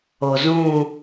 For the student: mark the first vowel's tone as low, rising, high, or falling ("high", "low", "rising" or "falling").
low